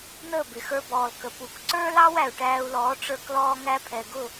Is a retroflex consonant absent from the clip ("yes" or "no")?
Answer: no